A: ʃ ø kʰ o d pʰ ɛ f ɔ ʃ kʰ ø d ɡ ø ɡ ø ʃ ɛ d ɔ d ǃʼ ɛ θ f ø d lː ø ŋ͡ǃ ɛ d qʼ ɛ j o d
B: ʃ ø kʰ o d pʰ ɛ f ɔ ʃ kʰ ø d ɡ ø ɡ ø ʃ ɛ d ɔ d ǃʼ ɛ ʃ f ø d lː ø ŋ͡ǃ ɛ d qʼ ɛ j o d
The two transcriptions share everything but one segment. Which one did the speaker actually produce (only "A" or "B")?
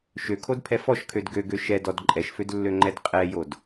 B